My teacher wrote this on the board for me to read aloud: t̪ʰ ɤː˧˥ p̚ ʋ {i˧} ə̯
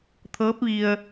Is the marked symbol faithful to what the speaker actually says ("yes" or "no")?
yes